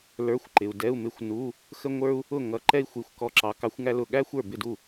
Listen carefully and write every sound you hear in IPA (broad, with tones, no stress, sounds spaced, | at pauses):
l ə˞˧˥˧ xʷ ǃ ɪ˨ u̯ d ɛ˧˥˧ u̯ m ɪ˧˥˧ xʷ n u˧˥˧ | x ə˥ ŋʷ ə˞˥ u̯ | ʊ˥˩ ŋ ʌ˧˥ ǃ ɛ˥ i̯ xʷ i˧˥˧ xʷ k ɔ˥˩ ǁ ɑ˧˥ k ɑ˧˥ xʷ ŋ æ˥ l ʊ˧˥˧ ɠ æ˥ xʷ ə˞˥˩ b ɪ˥˩ d u˥˩